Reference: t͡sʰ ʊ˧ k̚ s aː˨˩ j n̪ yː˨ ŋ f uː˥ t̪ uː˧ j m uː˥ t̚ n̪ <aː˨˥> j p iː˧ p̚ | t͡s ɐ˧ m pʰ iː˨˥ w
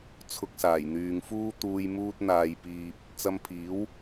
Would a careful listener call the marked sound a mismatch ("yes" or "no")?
yes